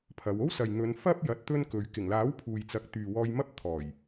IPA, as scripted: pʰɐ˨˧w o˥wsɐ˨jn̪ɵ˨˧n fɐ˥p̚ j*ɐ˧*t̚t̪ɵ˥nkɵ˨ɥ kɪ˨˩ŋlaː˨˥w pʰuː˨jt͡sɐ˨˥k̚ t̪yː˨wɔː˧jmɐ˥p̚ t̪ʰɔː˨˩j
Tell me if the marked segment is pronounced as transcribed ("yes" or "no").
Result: yes